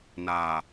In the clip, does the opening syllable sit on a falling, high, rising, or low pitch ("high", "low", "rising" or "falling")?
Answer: low